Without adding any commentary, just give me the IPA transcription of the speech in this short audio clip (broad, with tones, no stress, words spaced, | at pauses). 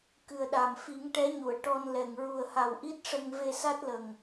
kɨ˨˩ə̯ ɗa˨˩m fi˨˩˦ŋʈɛ˧˥ɲu˨˩˨ə̯ ʈɔ˧n lɛ˨˩ŋ ɹu˨˩ə̯ha˨˩w ʔi˦˥t̚ʂə˧ŋ ve˧sa˦˥t̚lə˨˩ŋ